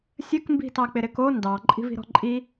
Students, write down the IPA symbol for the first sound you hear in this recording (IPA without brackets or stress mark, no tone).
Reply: sʲ